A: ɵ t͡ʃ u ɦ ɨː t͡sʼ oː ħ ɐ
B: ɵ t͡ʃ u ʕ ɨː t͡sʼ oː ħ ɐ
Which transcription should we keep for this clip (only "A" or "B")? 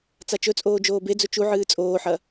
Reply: B